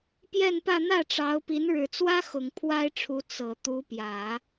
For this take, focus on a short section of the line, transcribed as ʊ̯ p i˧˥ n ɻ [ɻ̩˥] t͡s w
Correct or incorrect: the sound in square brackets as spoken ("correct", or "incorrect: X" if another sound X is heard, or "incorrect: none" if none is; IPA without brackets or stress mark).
incorrect: ɻ̩˨˩